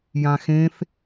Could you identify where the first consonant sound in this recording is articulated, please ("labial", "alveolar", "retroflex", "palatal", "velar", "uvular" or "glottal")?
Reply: palatal